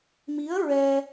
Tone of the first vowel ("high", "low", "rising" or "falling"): rising